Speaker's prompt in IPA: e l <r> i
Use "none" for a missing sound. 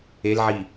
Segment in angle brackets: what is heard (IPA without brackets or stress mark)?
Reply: ʕ